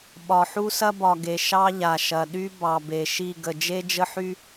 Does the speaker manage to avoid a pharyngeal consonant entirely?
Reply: no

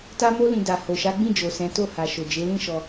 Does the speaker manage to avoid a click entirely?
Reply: yes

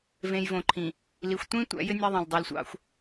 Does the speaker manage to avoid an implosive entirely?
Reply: yes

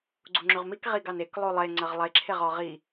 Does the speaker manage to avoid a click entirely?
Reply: no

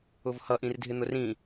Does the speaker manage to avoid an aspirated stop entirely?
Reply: yes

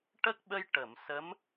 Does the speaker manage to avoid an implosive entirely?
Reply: no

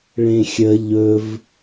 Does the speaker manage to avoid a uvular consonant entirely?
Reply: yes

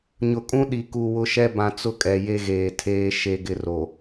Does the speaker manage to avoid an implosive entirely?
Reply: no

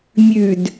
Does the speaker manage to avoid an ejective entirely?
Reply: yes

